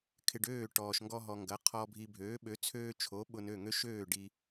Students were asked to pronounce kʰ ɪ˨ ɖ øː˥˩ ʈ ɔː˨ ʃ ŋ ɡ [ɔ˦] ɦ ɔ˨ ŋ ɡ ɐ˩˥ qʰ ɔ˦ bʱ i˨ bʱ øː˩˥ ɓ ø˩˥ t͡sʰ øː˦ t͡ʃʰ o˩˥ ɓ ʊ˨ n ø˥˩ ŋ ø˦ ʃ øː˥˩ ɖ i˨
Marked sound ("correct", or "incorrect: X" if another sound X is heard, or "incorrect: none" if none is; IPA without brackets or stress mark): correct